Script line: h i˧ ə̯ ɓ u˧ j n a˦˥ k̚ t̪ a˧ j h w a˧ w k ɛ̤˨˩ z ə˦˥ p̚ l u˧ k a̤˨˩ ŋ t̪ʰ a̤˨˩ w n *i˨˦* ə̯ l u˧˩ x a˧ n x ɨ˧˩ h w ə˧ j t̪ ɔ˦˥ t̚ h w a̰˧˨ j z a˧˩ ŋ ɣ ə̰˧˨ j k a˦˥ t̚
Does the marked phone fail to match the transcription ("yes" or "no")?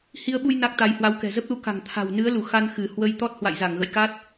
yes